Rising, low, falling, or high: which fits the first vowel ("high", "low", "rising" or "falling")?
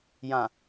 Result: low